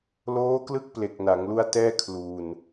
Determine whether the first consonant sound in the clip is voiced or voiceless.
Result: voiced